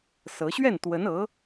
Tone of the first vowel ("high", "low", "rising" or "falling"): rising